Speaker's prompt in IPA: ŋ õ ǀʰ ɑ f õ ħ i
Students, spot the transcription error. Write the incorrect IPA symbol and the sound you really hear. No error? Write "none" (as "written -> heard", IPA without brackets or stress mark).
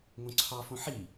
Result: none